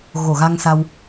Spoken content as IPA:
ɣo˧˩ɣa˧ŋsa˧w

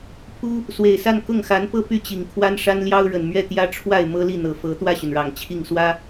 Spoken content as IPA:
pʰu˥ | swe˨˩ɪ̯sa˥˧n kʊ˥˩ŋxa˧˥n pɤ˥˧ py˥˩t͡ɕi˨˩ŋ kʰwa˥nʂa˥nljɑ˥ʊ̯ ɻə˨˩nmɥɛ˥˩ t̪jä˥ʈ͡ʂʰwa˥˩ɪ̯ mɤ˥li˥˩n̪ɤ˨˩ fɤ˧˥ t̪wä˥˩ɕy˩nɻɑ˨˩ŋ t͡ɕʰi˥˩ŋ swä˥

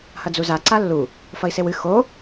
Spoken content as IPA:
hɐd͡zuza ǀalːu | fɐi̯sewɨ xo

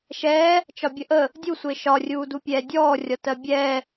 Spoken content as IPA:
ʃɛː | t͡ʃɒbʲəʔə | dʲusʷɪː ʃɒrʲuːdu pʲɛːdʲɔː rʲɒtɜbʲɛː

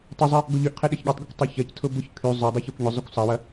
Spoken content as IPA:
tˤʊzˤɛ | ɡoʎyʔqʰe ɗɛçɠotˤɡekʷ tˤøçɐctʰʊ bʊç kʰy zˤʊdˤɛç ykʷɲʊzˤʊkʷ sˤɐwɐ

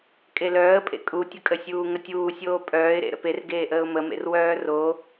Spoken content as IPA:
kʼelœːə̯pʼḛ kʼutʲəkʼəsʲuː ŋətʲuːsʲoː pʼœːɪ̯ɾḛ ɾə̰perɡeːʔəːʊ̯ məmḛr wœːro

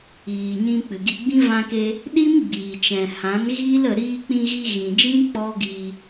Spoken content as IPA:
iː˨ɲĩ˧ k͡pɨ˨ɡi˧ɡ͡bĩ˦ vã˧ke˧ | ɗi˦mɡ͡biː˨t͡ʃɛ̃˨ hã˨˦nɣiː˦lə˧ ɾiː˧k͡pĩ˧ɣi˧ ɣĩ˨d͡ʒĩ˦ k͡pɔ˦ɡiː˧

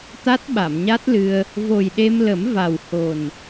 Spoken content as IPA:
t̪a˦˥t̚ɓa˨˩˨mɲa˦˥t̚lɨ˧ə̯ | vo˨˩jɗe˧mlə˨˩˦m va˨˩w ho˨˩n

